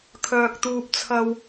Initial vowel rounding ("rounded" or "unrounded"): rounded